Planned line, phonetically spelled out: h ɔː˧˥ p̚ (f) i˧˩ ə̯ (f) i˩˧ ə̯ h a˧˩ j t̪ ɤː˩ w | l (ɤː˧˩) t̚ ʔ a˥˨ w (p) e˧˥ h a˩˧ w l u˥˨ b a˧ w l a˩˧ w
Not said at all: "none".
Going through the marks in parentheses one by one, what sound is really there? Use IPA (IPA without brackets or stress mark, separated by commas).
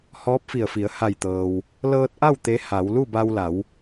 f, f, ɤː˧, t̪